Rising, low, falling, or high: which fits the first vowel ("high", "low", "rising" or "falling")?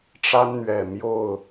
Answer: high